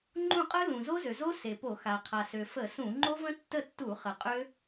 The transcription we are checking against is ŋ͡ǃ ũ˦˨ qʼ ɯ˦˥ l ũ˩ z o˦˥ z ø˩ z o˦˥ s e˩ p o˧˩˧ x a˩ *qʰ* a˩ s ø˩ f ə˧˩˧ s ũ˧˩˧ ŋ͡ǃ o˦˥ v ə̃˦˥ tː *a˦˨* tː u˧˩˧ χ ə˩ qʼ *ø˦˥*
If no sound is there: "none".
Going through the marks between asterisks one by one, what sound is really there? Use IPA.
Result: qʰ, ə˦˨, ø˦˥

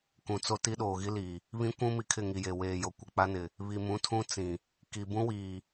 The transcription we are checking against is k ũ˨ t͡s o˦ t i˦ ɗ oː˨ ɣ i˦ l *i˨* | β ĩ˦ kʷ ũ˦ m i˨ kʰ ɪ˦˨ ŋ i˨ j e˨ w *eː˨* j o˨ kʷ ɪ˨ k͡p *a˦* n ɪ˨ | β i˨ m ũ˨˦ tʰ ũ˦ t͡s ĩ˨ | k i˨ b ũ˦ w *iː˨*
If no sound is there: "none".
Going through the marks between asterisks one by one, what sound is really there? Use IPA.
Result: iː˨, eː˨, a˦, iː˨

